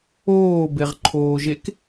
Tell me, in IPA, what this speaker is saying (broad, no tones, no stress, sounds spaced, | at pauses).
oː b e ʁ ǃʰ oː ʒ e k